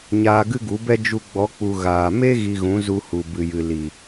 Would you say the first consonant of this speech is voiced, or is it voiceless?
voiced